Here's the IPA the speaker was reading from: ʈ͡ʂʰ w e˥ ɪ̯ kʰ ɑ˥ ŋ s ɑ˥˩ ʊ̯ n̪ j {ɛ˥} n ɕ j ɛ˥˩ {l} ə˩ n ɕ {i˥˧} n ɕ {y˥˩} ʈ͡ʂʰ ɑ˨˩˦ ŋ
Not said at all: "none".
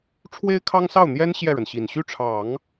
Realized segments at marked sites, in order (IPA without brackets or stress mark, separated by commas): ɛ˥, ɻ, i˨˩, y˥˩